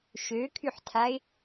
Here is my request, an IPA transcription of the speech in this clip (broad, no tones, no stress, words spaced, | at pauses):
ʃøkʰyħtʰaɪ̯